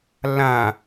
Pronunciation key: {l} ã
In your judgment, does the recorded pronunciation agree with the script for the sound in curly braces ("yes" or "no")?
yes